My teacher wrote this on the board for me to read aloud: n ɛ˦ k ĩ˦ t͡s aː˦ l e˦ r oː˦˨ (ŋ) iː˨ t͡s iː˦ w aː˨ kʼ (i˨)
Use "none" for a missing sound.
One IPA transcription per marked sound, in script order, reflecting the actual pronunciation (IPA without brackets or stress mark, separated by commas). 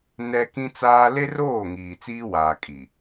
ŋ, i˨